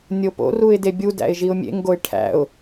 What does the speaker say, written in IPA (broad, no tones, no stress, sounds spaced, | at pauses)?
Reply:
nʲ o p o̰ r u ɪ̯ d e bʲ u d æ̰ ɪ̯ ʒ i ʊ̯ mʲ ḛ ŋ ɡ o ɪ̯ ʈʰ æ̰ ʊ̯